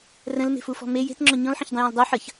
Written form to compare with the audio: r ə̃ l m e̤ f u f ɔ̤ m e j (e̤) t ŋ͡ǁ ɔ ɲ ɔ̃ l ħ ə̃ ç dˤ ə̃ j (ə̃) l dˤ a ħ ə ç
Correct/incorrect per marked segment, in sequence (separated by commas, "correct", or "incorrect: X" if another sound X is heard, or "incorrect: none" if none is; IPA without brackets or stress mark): correct, incorrect: ɔ̃